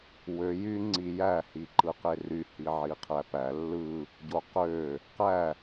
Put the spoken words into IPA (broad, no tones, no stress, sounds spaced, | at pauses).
w ø j y ŋ͡ǀ i j æ h i ǃ ɯ q e r y h i ʕ i qʰ æ p æ lː ɯ | ɟ o q ø | q æ